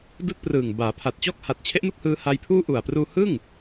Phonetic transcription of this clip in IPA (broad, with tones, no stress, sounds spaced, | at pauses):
d ɯː˥˩ k̚ p r ɯː˨˩ ŋ b aː˩˦ pʰ a˨˩ t̚ t͡ɕ ɔː˥˩ k̚ h a˨˩ t̚ t͡ɕʰ e˦˥ ʔ n u˥˩ k̚ h ɯː˧ h a˧ j pʰ uː˥˩ ʔ u˨˩ a̯ p r uː˧ h ɯ˥˩ ŋ